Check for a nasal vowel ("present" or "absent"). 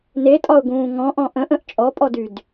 present